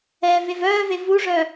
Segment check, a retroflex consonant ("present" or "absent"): present